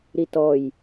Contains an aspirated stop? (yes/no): no